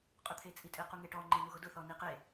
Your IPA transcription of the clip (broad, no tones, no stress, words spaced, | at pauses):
qʼʊt̪ʰet͡sʼitʼe quŋeʈɔ ŋ͡ǃenuɣʊdʊ θɔniqe